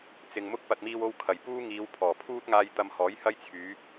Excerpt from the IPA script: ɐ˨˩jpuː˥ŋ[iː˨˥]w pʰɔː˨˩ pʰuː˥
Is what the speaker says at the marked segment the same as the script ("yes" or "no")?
no